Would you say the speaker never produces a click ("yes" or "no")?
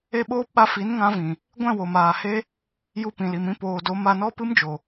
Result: yes